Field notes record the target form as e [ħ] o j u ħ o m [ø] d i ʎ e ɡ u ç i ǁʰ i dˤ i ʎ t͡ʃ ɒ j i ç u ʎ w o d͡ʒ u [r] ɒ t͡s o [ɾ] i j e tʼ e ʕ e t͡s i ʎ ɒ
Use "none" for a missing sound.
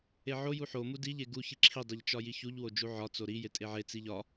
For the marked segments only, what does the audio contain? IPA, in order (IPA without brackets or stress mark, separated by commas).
ʕ, u, ʕ, ɾ